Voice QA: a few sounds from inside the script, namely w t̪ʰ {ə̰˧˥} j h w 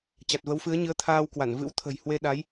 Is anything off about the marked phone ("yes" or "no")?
yes